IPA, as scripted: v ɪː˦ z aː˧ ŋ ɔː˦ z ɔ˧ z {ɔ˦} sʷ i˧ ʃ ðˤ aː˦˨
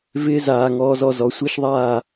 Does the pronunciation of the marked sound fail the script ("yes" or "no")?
yes